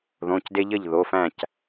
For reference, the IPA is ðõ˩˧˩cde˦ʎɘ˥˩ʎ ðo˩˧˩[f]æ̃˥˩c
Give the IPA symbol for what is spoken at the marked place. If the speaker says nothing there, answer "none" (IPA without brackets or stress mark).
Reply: f